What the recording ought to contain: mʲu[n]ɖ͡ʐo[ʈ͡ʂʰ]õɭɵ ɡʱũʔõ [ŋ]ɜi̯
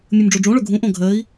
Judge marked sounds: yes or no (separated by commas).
no, no, no